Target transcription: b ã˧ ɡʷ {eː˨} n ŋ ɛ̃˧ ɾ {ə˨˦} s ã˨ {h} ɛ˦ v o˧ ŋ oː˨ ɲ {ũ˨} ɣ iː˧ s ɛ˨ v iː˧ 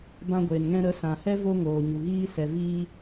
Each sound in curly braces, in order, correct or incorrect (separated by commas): correct, correct, correct, incorrect